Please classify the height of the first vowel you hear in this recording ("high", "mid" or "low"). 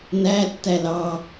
low